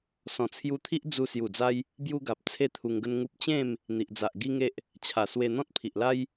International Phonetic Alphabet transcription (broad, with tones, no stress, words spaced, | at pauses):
sɔ̃˨˩t͡sʰju˧t̪ʰi˦ʔ d͡zu˧ sju˨˩d͡za˧j | bju˧ɡa˨p̚ t͡sʰe˥˧t̪ʰu˧ŋɡə˦nŋu˦p̚ t͡ɕẽ˥˧m | n̪i˨ʔd͡za˨ʔ ɡi˦ŋe˦ʔ | t͡ɕʰa˨˩swe˧ n̪ɔ̃˦t̚pʰi˨ʔla˦j